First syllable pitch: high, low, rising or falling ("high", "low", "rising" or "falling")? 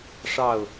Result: falling